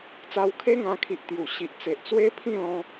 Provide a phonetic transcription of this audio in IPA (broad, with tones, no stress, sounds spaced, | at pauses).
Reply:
t͡s a˧ w kʰ e˦ ŋ ã˧ kʰ i˨ ʔ t̪ j u˨˩ ɕ i˨ ʔ t͡s e˨ ʔ t͡s w e˦ pʰ ĩ˥˧ l ɔ̃˧